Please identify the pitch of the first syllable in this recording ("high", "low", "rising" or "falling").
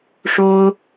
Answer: high